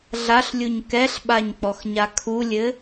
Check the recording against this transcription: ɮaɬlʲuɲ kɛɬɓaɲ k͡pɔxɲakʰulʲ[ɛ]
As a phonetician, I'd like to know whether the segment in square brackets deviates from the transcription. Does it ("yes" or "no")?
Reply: yes